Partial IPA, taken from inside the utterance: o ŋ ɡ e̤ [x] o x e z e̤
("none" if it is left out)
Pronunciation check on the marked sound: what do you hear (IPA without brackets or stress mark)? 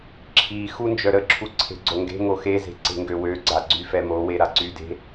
ŋ